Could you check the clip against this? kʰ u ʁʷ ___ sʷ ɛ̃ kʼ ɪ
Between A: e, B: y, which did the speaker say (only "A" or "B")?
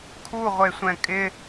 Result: A